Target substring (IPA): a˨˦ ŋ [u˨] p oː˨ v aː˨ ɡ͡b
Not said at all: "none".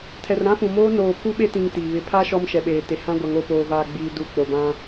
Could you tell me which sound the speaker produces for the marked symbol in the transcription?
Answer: o˨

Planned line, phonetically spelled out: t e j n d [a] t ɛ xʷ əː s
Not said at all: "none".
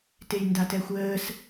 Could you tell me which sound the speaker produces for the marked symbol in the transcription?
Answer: a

